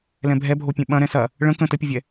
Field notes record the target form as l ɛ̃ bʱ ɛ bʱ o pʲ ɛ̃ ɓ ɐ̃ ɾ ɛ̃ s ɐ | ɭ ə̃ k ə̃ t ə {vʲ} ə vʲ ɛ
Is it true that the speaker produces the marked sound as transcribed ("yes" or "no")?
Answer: no